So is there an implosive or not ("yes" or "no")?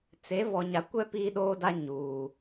yes